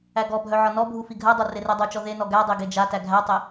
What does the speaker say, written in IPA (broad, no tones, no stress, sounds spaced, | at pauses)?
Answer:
æ ɡ ɔ bʱ œ ʕ ɒ n ɔ bʱ u f i ɡʱ ɜ dˤ o r e r e dˤ o t͡ʃ ɔ ð e n ɔ ɡ æ dˤ e ɡ e d͡ʒ a t æ ɡʱ æ tˤ e